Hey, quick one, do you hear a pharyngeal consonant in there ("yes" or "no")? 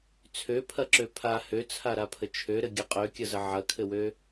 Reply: yes